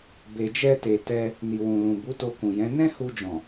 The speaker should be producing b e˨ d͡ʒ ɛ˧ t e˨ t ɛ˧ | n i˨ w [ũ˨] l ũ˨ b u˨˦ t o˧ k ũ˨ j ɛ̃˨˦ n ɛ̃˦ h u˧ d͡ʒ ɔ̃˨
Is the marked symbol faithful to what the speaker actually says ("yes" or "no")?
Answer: yes